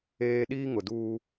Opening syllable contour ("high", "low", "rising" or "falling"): high